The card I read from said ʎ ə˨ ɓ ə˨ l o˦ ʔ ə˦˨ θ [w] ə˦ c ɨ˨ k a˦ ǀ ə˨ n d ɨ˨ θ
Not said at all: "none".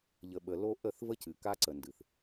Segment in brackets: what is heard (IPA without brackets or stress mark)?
v